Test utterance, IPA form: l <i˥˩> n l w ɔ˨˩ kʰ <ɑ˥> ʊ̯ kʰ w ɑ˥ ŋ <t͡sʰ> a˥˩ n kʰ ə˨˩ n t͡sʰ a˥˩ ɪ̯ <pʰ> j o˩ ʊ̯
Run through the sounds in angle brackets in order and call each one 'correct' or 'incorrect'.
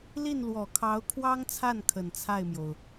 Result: correct, incorrect: ɑ˧˥, correct, incorrect: m

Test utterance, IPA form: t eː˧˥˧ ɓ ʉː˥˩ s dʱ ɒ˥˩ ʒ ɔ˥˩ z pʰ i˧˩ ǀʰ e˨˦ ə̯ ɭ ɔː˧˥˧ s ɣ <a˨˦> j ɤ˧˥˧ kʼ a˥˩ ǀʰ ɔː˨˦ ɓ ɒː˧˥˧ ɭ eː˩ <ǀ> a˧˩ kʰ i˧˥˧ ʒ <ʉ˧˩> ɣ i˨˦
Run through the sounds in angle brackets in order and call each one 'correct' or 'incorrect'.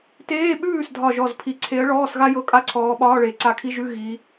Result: incorrect: a˥, correct, incorrect: ʉ˧˥˧

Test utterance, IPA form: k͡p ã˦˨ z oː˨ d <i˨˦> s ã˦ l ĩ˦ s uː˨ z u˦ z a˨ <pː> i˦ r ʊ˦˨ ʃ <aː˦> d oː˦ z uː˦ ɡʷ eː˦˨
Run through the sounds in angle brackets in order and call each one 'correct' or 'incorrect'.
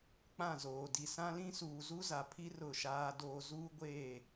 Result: incorrect: i˨, incorrect: pʰ, correct

